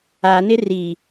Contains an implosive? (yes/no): no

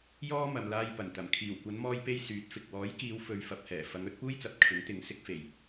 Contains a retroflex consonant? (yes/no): no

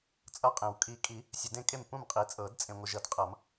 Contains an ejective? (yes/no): yes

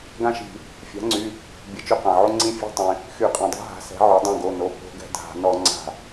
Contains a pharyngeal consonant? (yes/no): yes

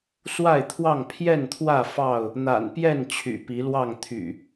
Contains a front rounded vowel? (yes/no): yes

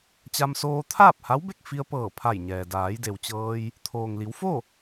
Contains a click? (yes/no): no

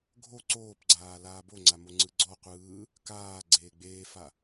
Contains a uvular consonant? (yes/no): yes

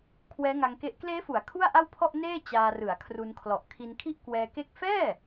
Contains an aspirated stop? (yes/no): yes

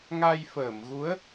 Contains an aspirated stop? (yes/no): no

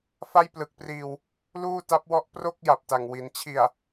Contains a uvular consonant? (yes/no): no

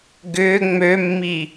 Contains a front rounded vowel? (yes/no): yes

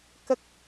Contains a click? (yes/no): no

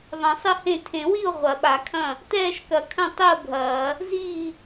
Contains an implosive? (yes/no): yes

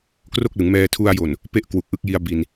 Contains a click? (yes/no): no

